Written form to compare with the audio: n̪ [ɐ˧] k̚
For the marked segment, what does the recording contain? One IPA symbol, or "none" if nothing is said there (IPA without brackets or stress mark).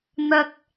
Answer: ɐ˧